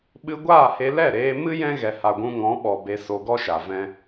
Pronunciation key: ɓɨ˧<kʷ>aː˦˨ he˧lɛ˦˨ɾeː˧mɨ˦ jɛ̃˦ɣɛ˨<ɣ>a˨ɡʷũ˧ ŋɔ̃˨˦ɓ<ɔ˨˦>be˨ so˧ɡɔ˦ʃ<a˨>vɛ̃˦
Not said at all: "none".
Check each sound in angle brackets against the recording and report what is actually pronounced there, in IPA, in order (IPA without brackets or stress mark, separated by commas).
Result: ɡʷ, h, ɔ˨, a˨